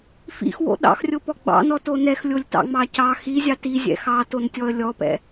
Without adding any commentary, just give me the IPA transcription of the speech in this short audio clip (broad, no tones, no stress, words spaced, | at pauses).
fḭxwo̰ ɗɑ̰xrʲopɔ ɡ͡bɑ̰nɔto nɛxlʲolʲtɑ̰ŋ͡mɑ cɑ xizʲɑ tizʲɛ̰ xɑtontʲɔə̯ lʲɔpɛ̰